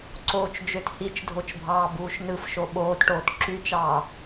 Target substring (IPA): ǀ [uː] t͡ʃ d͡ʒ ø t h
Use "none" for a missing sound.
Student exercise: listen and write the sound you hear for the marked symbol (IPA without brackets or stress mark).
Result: oː